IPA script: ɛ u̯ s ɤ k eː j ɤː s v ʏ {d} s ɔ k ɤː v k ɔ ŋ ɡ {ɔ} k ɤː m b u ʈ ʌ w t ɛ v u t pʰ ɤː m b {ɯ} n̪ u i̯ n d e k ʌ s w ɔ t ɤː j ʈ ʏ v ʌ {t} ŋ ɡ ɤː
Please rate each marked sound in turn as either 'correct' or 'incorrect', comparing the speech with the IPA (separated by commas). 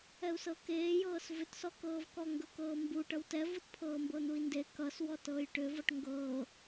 incorrect, incorrect, incorrect, incorrect